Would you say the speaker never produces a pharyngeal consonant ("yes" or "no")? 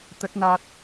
yes